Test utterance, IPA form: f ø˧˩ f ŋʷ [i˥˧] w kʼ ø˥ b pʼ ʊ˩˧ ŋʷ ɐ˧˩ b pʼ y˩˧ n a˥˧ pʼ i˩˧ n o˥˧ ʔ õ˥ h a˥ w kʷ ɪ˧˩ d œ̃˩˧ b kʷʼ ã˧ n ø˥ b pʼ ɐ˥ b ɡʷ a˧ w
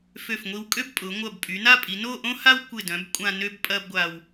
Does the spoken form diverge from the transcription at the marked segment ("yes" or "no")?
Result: yes